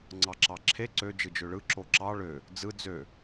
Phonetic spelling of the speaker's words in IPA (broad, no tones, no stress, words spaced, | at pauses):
ŋ͡ǀɑǁɑǁʰe ǀø d͡ʒɯd͡ʒøɭɯ ǁoǁɑ ɭø | d͡zɯ d͡zø